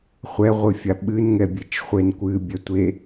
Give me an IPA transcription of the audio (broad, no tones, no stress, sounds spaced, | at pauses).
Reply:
χʷ ɛ ʁʷ ɨ fʲ a ɓ ɨ n ŋ ɛ bʲ e t͡ʃ χʷ e n kʷ ɨ bʲ ɛ tʷ e